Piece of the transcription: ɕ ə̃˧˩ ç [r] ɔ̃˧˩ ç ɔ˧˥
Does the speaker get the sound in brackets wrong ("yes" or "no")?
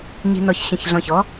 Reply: yes